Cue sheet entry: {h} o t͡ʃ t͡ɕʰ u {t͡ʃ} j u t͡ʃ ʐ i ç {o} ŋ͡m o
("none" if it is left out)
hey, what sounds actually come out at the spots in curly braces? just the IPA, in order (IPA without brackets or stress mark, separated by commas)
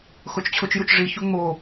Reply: x, t͡ʃ, u